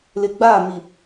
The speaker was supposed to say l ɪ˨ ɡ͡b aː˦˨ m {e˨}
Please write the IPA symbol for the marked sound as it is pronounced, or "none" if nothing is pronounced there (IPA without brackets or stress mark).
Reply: i˨